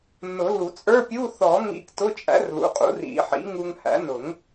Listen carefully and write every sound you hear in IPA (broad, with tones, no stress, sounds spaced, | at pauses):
nː ʊ˨˩˦ l u˨˩˦ t͡sʼ ə˞˧˥˧ pʲ u˧˥˧ θ ɔ˨˩˦ ŋ ḭ˧ k t ʊ˧˥˧ t͡ʃʼ æ̰˩˥ r l ṵ˩˥ qʼ ṵ˩˥ r ḭ˨˩˦ ħ ḭ˩˥ ŋ u˧ ŋ h æ̰˩˥ n ʊ˨˩˦ ŋ